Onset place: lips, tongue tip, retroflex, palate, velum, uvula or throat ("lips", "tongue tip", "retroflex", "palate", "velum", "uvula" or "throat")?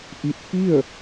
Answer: throat